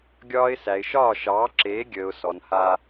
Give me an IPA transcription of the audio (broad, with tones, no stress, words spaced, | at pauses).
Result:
ɡʲɒː˦ɪ̯ sæ˨ɪ̯ʃɒː˦˨ʃɑː˨˦ǁeː˨˦ ɡʲəː˨ʊ̯ sɔ˨n ha˦